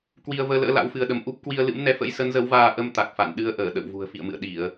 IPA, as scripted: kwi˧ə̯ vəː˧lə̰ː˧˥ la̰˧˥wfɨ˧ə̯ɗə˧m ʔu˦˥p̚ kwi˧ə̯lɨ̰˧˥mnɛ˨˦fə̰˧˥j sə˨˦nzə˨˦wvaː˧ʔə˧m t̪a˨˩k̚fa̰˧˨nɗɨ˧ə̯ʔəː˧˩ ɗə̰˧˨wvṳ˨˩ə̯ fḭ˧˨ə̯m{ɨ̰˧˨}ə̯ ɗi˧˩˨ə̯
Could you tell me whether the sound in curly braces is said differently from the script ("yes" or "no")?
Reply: no